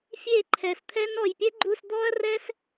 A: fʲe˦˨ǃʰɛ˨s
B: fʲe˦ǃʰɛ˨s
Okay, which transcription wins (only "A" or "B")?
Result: A